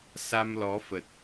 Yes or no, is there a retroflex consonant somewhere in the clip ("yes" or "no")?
no